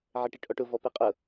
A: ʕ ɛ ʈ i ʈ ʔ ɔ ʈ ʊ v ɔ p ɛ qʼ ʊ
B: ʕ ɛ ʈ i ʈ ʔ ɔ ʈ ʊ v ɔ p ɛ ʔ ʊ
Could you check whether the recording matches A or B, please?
A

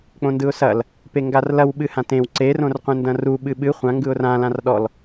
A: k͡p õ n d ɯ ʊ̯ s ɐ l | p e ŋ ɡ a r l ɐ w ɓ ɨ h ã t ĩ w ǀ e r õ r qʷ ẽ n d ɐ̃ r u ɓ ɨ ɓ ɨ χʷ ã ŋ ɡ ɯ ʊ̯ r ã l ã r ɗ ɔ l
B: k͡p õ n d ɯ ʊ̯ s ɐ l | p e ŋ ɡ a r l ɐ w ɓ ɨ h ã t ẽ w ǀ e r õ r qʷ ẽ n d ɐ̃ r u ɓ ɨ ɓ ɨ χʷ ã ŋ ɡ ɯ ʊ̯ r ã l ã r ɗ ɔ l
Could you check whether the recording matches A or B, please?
B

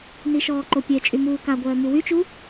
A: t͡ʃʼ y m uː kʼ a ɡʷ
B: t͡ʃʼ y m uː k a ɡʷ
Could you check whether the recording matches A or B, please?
B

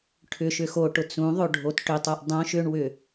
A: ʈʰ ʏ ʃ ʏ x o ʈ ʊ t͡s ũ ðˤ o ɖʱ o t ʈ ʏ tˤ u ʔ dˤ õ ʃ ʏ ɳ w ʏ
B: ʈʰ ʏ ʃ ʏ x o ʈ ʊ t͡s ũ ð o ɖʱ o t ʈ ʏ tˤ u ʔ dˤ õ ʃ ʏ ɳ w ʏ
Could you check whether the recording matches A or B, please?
A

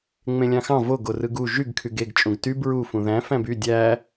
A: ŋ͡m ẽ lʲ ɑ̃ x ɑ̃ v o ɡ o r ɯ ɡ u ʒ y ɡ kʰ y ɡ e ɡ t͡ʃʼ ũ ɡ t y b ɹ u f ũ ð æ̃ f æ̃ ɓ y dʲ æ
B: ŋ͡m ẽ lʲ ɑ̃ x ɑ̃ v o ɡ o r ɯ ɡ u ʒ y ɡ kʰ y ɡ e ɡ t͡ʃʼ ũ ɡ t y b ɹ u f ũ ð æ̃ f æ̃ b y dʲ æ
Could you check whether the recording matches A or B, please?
B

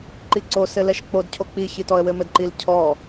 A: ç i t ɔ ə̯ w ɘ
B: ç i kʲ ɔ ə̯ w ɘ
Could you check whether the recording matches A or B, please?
A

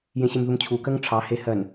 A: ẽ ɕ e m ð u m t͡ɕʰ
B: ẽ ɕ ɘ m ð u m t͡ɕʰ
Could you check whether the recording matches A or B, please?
A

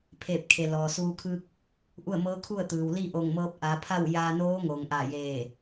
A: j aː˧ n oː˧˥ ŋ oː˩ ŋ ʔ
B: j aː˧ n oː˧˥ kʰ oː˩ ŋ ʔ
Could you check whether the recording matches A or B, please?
A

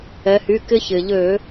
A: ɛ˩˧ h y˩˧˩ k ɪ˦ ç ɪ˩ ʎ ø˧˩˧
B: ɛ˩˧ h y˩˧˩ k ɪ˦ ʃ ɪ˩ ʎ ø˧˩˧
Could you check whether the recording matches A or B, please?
A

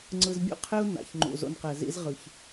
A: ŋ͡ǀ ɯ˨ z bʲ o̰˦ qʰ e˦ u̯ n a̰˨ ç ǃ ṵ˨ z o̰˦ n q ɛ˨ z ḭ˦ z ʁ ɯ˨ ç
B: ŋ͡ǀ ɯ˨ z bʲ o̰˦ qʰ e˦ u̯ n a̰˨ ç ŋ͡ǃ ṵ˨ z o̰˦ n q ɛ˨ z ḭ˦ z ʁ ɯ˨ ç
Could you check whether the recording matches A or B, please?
B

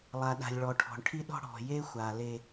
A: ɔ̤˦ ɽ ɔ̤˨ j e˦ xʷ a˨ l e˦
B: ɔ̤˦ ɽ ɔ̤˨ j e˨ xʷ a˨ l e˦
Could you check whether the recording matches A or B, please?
A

